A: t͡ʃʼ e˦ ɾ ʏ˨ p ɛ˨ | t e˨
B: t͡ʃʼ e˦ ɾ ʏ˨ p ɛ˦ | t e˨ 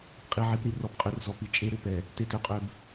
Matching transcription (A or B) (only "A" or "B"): A